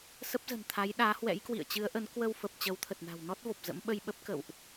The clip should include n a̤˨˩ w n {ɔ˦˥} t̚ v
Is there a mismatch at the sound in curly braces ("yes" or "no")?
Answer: no